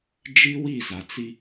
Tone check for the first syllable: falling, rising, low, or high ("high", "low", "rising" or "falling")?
high